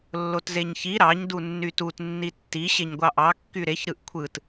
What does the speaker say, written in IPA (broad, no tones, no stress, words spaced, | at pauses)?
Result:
lːotzeɲçi ɾɑɲ dunːytut nːitːi ɕeɲɡʷɑʔɑ kːyɾeç ɾɯʔkʷʰɯt